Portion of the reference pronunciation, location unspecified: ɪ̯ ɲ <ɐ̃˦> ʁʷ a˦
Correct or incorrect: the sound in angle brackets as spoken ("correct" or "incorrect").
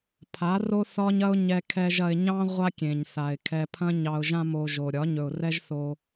incorrect